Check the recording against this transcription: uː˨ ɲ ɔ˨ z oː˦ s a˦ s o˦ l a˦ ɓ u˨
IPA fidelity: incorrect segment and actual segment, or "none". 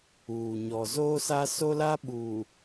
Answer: none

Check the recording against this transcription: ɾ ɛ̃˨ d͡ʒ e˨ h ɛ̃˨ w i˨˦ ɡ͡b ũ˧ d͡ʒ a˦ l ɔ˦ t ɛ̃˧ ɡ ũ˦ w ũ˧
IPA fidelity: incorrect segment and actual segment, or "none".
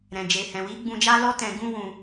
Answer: none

